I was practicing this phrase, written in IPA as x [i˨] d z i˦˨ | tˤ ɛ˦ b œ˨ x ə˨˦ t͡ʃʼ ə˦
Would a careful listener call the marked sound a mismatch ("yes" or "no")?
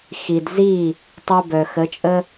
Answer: no